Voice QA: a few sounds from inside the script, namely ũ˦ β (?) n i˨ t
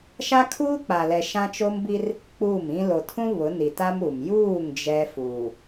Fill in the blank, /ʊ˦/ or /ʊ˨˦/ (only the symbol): ʊ˨˦